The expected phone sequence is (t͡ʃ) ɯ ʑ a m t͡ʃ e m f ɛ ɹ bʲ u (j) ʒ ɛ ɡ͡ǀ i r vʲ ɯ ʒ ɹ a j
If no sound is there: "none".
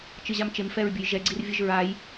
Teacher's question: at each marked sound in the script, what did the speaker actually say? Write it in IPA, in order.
t͡ʃ, j

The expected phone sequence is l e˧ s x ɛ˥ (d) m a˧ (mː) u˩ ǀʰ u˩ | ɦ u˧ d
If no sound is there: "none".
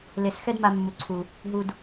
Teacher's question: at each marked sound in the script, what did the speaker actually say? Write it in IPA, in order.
d, mː

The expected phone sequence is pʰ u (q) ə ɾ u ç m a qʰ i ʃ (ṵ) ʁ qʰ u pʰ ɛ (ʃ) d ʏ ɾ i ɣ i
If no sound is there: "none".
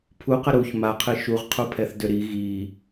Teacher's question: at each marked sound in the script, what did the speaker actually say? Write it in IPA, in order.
q, u, θ

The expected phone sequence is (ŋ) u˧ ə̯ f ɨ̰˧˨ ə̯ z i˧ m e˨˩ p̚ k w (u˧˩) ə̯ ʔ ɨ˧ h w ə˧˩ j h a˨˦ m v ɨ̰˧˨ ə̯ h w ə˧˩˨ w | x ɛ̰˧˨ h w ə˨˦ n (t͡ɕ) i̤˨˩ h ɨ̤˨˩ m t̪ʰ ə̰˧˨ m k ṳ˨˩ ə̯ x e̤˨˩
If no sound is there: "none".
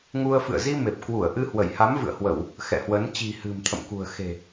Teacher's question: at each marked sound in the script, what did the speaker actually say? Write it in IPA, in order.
ŋ, u˧˩, t͡ɕ

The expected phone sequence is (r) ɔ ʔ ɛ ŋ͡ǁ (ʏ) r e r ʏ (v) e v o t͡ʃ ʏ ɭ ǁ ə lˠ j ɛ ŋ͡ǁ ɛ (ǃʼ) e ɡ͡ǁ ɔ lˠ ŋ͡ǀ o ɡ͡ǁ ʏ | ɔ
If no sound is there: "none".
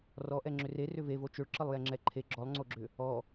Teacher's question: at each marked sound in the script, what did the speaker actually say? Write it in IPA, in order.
r, ʏ, v, ǃʰ

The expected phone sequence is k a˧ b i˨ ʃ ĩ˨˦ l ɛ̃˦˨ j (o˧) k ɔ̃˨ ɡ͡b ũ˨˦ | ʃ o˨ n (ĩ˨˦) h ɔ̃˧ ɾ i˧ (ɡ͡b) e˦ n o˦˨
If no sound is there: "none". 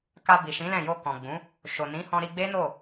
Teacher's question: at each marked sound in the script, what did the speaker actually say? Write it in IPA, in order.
o˧, ĩ˨˦, ɡ͡b

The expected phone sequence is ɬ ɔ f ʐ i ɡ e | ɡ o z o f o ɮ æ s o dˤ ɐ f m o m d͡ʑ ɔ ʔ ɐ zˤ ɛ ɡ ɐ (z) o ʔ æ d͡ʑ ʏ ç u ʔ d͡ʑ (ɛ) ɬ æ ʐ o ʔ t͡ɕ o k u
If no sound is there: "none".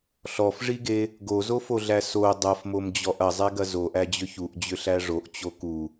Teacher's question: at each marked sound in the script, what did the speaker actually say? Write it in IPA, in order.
z, ʏ

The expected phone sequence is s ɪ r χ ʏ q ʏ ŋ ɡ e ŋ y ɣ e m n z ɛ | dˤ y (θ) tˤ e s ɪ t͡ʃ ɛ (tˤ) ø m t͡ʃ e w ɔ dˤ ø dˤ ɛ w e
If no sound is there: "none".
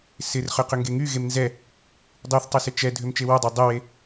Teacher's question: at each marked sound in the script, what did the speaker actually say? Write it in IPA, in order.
θ, dʱ

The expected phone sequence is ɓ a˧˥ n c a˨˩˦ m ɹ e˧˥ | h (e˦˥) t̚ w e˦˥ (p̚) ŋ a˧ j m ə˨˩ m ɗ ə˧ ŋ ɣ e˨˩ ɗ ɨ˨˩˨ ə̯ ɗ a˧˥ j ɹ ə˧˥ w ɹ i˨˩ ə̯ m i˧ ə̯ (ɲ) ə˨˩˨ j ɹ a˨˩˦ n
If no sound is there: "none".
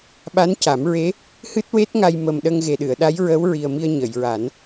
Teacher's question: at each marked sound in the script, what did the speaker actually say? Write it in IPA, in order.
ɨ˦˥, t̚, ɲ

